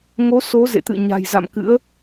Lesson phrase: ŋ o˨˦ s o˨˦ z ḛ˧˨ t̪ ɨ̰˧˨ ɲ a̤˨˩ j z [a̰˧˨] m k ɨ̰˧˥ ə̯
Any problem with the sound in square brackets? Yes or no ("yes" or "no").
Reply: no